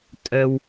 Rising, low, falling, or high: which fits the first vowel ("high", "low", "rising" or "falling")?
low